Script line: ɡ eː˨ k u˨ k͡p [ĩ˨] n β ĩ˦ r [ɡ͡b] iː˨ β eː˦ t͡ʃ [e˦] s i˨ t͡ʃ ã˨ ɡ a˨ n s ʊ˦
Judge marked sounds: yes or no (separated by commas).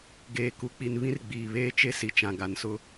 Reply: no, yes, yes